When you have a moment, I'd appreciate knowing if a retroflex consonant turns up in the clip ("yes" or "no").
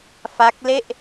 no